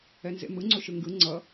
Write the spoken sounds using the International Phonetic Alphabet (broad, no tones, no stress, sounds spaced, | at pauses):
ɛ n z ḛ m ɯ ŋ͡ǀ o ʃ ɯ ŋ ɡ ɯ ŋ͡ǀ ʌ